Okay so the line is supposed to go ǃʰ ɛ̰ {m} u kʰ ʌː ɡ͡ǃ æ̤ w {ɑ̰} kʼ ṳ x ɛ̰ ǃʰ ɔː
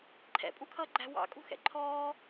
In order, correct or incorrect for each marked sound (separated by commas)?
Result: incorrect, correct